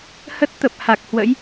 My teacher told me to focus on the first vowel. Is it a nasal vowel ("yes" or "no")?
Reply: no